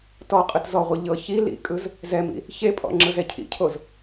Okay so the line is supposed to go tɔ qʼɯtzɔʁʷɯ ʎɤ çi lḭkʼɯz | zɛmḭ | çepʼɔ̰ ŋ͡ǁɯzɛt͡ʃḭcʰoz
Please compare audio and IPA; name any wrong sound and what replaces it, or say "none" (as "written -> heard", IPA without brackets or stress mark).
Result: t͡ʃ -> cʰ